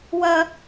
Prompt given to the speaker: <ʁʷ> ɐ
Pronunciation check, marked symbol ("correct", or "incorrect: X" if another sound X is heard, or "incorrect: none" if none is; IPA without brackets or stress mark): incorrect: w